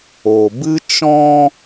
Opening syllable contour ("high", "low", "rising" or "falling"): low